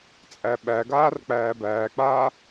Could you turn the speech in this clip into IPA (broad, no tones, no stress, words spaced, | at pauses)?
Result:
t͡sʼæɓæɡaːr k͡pæːbæːk͡paː